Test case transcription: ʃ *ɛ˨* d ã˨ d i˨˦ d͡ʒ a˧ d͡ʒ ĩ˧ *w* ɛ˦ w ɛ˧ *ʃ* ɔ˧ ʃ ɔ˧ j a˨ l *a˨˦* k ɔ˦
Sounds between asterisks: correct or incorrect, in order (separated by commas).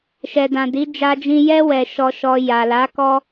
correct, incorrect, correct, correct